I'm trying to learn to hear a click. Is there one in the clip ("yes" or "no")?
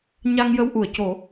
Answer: no